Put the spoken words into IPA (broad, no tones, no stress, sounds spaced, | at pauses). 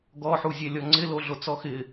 ɡ ɔ ħ u zʲ ɛ lʲ ɔ ŋ͡ǀ ɪ l o ɮ o t͡s ɔ x ɪ